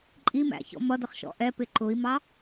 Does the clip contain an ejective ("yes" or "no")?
yes